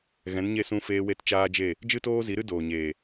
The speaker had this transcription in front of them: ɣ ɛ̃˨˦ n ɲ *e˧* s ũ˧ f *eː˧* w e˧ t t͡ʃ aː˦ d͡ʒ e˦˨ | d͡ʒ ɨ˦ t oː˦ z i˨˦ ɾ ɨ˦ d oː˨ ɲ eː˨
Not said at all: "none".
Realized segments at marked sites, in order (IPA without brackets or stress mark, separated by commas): e˦˨, eː˧